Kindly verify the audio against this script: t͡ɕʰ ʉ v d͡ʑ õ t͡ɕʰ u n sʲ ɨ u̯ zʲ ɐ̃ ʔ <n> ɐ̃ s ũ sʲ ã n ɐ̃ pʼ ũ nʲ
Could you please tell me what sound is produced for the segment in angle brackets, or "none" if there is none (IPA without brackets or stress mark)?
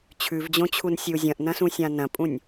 n